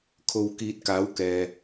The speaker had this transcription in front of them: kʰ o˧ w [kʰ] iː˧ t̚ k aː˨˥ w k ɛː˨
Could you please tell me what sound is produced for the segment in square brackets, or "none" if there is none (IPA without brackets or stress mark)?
k